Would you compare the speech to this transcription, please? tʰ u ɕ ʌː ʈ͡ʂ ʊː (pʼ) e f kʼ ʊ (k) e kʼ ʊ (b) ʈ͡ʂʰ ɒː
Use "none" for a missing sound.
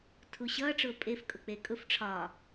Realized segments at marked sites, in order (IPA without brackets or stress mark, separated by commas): pʼ, k͡p, f